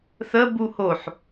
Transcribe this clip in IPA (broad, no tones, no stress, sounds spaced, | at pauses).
θ ə b u h o ħ